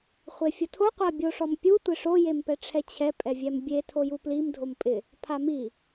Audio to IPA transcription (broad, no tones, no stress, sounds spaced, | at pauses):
χʷ e fʲ ʊ tʰ o qʷ a bʲ o ʂ ɔ m pʲ u tʷ ɪ ʂ o j e m p ɛ ʈ͡ʂʰ ɛ t͡ɕʰ ɛ pʼ ɛ vʲ ɛ m bʲ e tʰ o j u p l i m dʱ o m pʼ ɪ | pʰ a m i